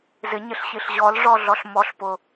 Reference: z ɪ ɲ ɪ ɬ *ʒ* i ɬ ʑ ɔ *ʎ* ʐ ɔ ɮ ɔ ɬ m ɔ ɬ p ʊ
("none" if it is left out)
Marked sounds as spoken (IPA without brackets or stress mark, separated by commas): ɕ, l